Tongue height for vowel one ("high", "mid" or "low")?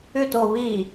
high